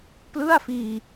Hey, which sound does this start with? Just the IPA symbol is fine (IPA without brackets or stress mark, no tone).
p